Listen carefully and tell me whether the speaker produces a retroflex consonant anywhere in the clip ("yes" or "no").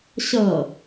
no